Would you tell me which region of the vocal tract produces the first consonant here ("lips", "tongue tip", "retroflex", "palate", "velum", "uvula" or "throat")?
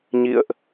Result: palate